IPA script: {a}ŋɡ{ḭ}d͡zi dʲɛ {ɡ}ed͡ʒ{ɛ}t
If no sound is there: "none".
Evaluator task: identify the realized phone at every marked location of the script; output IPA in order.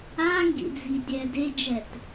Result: a, ḭ, d, ɛ

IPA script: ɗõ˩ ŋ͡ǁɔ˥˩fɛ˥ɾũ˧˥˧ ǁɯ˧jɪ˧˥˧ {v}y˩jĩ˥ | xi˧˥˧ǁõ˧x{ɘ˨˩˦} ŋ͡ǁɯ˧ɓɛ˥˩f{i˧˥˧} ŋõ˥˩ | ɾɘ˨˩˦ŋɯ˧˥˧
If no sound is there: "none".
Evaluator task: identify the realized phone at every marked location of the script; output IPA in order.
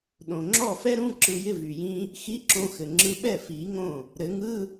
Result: v, ɘ˩, i˨˩˦

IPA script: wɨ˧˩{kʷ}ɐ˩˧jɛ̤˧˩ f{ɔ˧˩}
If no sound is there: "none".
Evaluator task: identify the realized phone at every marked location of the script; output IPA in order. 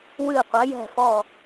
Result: qʷ, ɔ˧˩

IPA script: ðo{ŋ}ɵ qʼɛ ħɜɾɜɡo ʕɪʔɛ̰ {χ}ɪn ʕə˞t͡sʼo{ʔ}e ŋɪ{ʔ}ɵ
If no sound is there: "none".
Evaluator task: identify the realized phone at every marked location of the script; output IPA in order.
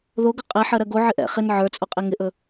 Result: ɡ, χ, qʼ, ʔ

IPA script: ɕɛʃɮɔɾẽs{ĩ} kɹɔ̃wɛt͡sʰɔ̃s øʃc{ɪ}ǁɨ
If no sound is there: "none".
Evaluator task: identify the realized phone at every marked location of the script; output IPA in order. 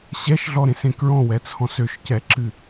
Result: ẽ, ɛ

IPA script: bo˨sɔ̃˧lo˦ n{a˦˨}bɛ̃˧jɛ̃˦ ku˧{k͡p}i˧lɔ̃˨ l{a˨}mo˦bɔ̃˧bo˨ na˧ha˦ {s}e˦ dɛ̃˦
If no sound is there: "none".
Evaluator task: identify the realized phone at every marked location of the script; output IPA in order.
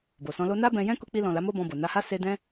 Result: a˦, k͡p, a˨˦, s

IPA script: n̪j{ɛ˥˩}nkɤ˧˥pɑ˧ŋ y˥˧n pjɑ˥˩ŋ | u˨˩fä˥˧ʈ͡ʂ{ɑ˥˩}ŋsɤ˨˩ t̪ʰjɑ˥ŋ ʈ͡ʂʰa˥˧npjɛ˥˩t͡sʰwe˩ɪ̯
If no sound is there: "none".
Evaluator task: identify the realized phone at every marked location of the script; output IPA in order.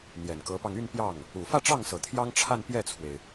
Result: ɛ˨˩, ɑ˥˩

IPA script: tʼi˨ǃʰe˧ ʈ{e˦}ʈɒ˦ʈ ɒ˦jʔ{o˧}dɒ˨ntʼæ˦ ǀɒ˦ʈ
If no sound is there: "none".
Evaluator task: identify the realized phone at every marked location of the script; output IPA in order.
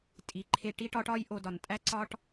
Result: i˦, o˧

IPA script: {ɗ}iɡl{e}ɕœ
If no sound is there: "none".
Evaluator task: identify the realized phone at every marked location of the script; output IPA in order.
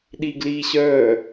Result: ɗ, i

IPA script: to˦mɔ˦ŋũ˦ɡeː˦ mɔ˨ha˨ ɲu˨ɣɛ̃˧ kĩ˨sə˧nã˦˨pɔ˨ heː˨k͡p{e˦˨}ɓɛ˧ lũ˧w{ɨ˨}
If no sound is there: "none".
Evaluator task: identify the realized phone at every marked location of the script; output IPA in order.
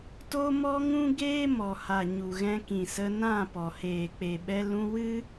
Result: e˨, ɨ˦

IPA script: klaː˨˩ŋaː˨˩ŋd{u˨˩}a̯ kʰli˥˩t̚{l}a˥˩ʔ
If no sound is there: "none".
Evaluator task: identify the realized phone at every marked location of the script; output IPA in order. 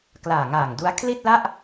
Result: u˦˥, l

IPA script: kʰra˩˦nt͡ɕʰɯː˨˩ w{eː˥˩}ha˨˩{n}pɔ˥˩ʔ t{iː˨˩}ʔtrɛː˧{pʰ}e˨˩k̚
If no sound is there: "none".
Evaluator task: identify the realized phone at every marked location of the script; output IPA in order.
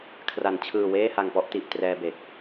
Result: eː˥˩, ŋ, i˨˩, b

